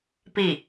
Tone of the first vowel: falling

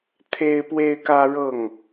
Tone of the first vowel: high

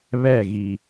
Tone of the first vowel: falling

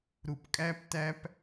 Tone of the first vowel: low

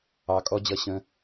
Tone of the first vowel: low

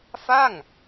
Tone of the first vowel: falling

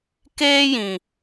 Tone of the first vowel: high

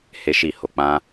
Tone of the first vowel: high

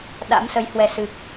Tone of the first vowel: rising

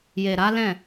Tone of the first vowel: low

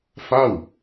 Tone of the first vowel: falling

